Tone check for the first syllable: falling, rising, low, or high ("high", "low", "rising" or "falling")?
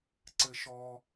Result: high